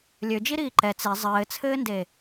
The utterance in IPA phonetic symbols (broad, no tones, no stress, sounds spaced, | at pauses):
lʲ ø d͡ʒ i ɾ iː ǃ ɛ t͡s e zˤ ɘː t͡sʰ ɘː n d e